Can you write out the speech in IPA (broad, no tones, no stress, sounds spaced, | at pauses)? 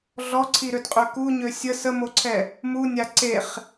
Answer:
ɮ ɔ ǀʰ i ɾ ø d qʼ ø k u ɲ ø sʲ ə s ə m o ǀʰ ɛ | m u nʲ a ǀ e χ